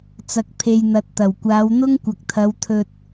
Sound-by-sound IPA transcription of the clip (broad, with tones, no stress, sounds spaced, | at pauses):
t͡s ɐ˨ k̚ pʰ e˨ j n̪ ɐ˨ t̚ t̪ ɐ˨˩ w kʷ aː˨˧ w n̪ ʊ˥ ŋ kʷ ɐ˨ k̚ t̪ʰ ɐ˨˧ w t̪ʰ ɵ˧ t̚